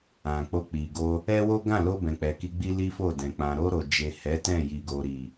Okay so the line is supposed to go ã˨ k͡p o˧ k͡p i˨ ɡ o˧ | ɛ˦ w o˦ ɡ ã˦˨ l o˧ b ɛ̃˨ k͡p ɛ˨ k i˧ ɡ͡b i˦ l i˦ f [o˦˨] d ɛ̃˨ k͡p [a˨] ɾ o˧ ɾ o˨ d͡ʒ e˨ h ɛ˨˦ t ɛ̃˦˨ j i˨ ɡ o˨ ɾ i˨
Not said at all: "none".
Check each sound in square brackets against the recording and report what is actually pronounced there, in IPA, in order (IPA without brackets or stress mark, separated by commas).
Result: o˦˨, ã˨